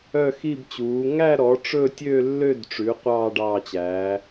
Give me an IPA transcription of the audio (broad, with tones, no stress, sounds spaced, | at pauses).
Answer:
œ˥˧ x i˥˧ b t͡ɕ uː˨˥ ŋ æ˥˧ ɾ ɔ˨˥ ʈ͡ʂ ɵ˥˧ tʲ ø˥˧ lː ø˥˧ d ʈ͡ʂ ʉ˨˥ qʷ ɑː˥˧ ɖ ɑː˥˧ t͡ɕ æ˨˥